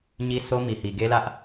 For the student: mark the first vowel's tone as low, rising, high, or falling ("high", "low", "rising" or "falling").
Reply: high